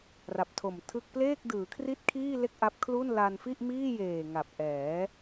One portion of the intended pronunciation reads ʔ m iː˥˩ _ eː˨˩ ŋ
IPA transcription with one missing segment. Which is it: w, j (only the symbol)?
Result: j